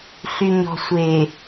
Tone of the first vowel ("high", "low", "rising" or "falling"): low